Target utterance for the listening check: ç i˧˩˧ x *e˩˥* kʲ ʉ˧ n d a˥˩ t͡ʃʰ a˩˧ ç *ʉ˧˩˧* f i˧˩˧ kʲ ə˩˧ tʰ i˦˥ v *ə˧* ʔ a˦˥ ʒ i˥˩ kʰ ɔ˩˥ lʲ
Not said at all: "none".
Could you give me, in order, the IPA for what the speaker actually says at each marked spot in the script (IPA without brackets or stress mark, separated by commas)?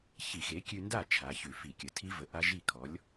e˩˥, ʉ˧˩˧, ə˩˧